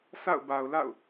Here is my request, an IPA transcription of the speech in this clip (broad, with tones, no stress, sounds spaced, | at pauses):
sʰ a̰˦˨ ʊ̯ b a˨ ʊ̯ l a̰˦˨ ʊ̯